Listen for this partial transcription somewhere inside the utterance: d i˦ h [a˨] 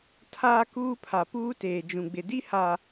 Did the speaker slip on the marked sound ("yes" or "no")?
no